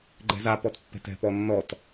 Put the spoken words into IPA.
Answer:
ɡ͡ǃɛ̤zapɔtpːɛ̤t ɛ̤pɔnːɔt

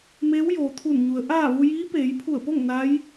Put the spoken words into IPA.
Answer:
meː˧˥w joː˩t̪ʰu˧˩nɲu˩˧ə̯ ʔaː˥˨ ʋu˧jiː˧˥peː˩˧j pʰu˧˩ə̯po˥˨ŋ na˧˥j

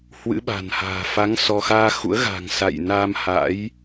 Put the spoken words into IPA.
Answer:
hwɨ̰˧˥ɓa̤˨˩nha̤ː˨˩ fa˨˦ŋ sɔ˧ xaː˧xṵ˧˥ə̯ɣa̤˨˩ŋ sa̰˧˨jna˧m ha̰˧˥j

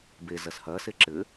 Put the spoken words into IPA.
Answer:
be zɐshɐ seǁɘ

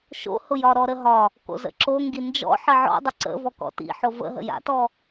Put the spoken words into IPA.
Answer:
ʃo̰hʊ jɒɾɔɾəɦɒ | ko̰zə̰ǁoŋɡi nd͡ʒɔ̰ ħəʕɔ̰dˤə ǀə̰vɔ kɔ̰tḭ ħovə̰ɦə̰ ja̰tɔ

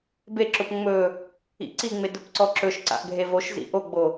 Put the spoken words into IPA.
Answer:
beǁʊp ŋ͡mɵ | ḭǀiŋ͡me dʊpǀɔǁɵʃǀa̰ʔ ɡʱevoʃzḭ ʔoɡ͡bo

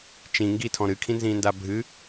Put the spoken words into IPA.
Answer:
t͡ʃĩ ŋɡitʰɔ̃ ɾɨkʰĩnzĩːnda bʱɨ

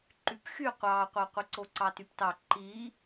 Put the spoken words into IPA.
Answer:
ǃypxy qʷɑːqʷɑqʷɯǀo ǀɑtyptɑ ǃi

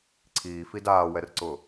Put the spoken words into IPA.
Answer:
ǀʰiː fidaːwɛrǀʊ

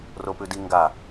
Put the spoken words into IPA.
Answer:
ropʉdi ŋɡa

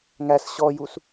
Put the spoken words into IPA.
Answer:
ŋæs ɕɔjus

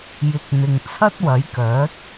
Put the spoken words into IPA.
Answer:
jɪ˧k̚n̪ɪ˧ŋ t͡sʰɐ˥t̚wɐ˨˥jkœː˨˥t̚

